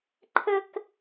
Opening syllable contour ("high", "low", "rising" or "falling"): high